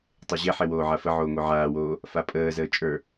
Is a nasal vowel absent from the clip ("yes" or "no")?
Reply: yes